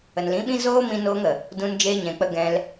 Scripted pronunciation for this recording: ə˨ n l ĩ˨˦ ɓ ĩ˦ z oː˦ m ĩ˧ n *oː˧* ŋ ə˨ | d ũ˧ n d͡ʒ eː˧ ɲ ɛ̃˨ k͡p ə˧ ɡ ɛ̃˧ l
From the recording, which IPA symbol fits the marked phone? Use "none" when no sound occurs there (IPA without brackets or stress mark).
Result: oː˧